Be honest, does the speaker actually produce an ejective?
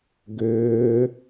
no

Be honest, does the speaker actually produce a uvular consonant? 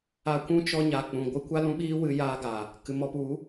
no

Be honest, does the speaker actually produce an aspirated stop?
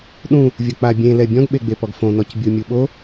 no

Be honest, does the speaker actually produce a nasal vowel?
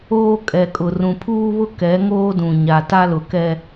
yes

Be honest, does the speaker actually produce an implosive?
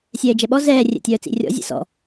yes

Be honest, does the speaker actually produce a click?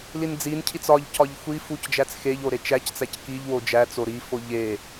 no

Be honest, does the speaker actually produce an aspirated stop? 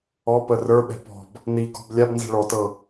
no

